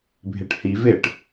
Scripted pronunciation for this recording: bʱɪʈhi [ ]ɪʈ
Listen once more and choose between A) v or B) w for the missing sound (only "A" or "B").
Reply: A